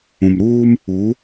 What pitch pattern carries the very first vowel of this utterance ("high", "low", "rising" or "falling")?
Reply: low